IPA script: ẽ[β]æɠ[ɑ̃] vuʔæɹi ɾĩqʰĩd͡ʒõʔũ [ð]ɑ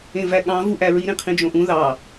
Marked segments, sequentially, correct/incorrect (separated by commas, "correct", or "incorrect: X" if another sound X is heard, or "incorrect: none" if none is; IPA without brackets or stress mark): incorrect: v, correct, correct